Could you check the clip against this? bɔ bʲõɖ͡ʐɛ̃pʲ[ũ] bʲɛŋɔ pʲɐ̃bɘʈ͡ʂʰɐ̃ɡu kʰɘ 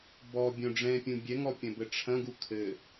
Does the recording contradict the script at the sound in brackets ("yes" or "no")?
no